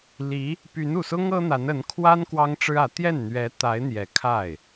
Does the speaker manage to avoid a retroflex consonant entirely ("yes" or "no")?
no